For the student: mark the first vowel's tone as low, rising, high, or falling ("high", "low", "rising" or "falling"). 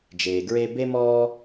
low